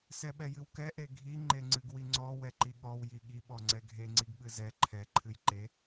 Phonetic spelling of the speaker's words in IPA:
sɛɓɛjɨwkɛ ʔeɡʱi ŋ͡ǃeŋ͡ǀɨɡwiŋ͡ǀɔ wɛǃiɠɔw jiɠi ɓɔŋ͡ǀɛɡʱe ŋ͡ǀiɡɓɨzɛ ǃʰɛ ǃʰɨjǃe

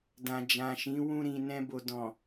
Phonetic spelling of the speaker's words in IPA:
dã˨d͡ʒã˨ʃĩ˨˦ wũ˧ɾĩ˨ nɛ̃˧bo˨dɔ̃˨

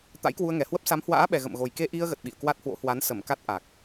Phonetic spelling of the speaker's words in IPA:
t̪a̰˧˥jkwu˧ə̯ŋɛ˨˩hwə˦˥p̚ sa˨˦mhwa̰ː˧˥ɓɛ˨˩ ɣə̰˧˨mɣo˨˩j ke˧ʔi˧ə̯ɣə˨˩t̚ ɓḭ˧˨ə̯kwa˦˥t̚hwo̰˧˥ hwa˨˦nsə˧˩mka˦˥t̚ ʔa˨˩k̚

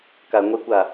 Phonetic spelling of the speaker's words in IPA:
kaɐ̯ŋʷekʷa

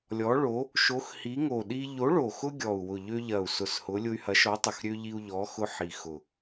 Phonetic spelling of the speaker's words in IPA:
lʲɔ˨˥ɭo˨˥ | ʃo˨˥xhi˨˥ŋo˨˩ɗi˦ ʎo˨˥ɭo˨˩xʊ˦ ɡʲɔ˨˩u̯wʊ˨˩ ʎø˦ ʎɐ˨˩u̯sʊ˨˩s hʊ˨˥lʲʊ˦y̯ hɐ˨˥ʃɔ˨˥tˤʊ˨˩xɾʲø˦ ʎi˦u̯ʎɔ˨˥xʊ˦ ħi˨˩xʊ˨˩

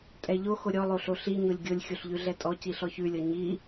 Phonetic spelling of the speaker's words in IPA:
tʼɛʎoxo ɾʲɔlˠoɬo ɬi ɲolʲɡʲolʲ xʲoɬʎʉɮɛtʼɔ ciɬɔçʉlʲɔ ɲi

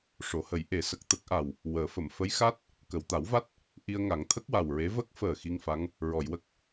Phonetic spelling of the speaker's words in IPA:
ʂo˨˩˦hə˨˩˦j ʔe˨˩˦ sə˨˩k̚t̪ə˦˥k̚ʔa˨˩w | wəː˨˩˦fə˨˩˨m fə˧˥jxa˦˥t̚ | kə˨˩˨wt̪a˨˩˦wva˦˥t̚ | ʔi˧ə̯ŋa˨˩˦ŋt̪ʰə˦˥k̚ wa˨˩wɹe˧˥ və˦˥k̚fəː˨˩ xi˧ŋfa˧˥ŋ | ɹɔ˨˩˨jwə˦˥k̚

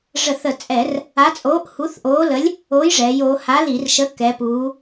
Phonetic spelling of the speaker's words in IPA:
ʐə˧˩˧θə˧˩˧t͡sʼɛ˧˩˧r | a˨˥t͡sʼoː˨˥ʔ hu˨˥θʔoː˨˥lə˨˥lʲ | oː˨˥jʐɛː˩˧joː˩˧ ha˨˥li˧˩˧rʃə˨˥ kɛ˩˧puː˩˧

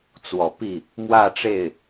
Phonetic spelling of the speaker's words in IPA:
t͡swɔ˨˩pi˥˩ | mwä˥˧ʈ͡ʂe˥˩ɪ̯

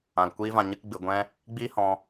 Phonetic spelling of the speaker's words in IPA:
ã˨lkʷiː˦vã˧ ɲɨ˦kɡ͡bɨ˧ ɡʷɛ̃˦ | ɡ͡biː˦hɔ̃˧

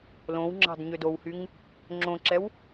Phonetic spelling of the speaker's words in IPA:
lõw ŋ͡ǁɑ̤dɲødowhyŋ | ŋ͡ǁõǁɛw

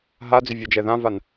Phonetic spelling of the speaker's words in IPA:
ɦad͡zʏvʲɔd͡ʒɛ ðãvan

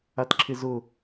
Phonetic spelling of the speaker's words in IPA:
atǁʰɪzʊ

